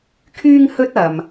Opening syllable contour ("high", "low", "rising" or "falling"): high